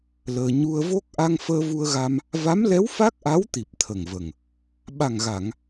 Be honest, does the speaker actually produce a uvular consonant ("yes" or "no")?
no